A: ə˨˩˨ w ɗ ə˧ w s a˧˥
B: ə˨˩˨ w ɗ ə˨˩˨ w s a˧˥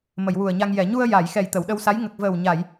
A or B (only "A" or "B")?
A